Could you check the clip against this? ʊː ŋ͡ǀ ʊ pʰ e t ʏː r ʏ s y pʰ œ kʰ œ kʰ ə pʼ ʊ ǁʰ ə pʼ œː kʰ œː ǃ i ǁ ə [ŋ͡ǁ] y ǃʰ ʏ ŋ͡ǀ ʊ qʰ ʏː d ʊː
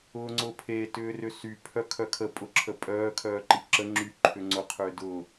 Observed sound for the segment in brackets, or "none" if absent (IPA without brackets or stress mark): ŋ͡ǁ